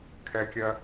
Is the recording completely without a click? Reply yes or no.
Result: yes